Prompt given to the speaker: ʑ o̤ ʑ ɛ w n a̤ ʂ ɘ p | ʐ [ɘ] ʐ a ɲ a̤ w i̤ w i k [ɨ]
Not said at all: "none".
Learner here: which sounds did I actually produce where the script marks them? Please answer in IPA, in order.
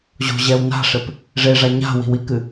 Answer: e, ɨ

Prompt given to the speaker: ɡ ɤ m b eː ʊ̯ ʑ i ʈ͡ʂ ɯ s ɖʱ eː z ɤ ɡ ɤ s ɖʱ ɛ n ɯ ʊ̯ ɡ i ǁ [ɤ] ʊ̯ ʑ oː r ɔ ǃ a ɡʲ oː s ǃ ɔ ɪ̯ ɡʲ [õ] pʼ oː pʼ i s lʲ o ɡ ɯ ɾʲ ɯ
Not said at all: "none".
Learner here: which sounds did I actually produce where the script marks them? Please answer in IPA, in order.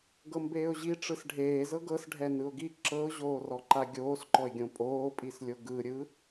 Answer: ɤ, õ

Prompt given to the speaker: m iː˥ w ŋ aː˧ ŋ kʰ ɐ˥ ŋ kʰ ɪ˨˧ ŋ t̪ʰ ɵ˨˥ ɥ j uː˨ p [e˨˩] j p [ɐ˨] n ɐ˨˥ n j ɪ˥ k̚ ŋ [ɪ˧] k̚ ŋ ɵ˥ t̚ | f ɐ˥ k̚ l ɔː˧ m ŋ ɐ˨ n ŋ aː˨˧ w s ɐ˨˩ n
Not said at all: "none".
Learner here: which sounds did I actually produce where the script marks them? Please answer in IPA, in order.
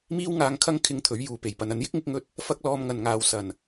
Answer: e˨˩, ɐ˨, ɪ˧

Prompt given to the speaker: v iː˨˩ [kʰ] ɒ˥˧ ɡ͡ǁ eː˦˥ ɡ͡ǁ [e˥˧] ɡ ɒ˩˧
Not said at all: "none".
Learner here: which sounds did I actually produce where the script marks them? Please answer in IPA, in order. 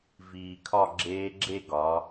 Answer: kʰ, e˥˧

